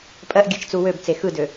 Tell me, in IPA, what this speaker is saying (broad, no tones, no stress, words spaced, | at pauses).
pʼɜʔɡʲɜt͡ʃt͡su wøbt͡se xɯdø